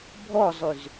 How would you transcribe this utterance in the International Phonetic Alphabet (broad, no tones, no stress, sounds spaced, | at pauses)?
bʱ ɔ zˤ y z